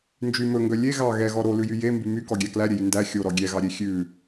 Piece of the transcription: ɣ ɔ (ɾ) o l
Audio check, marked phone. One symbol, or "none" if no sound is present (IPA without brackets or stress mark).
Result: ɾ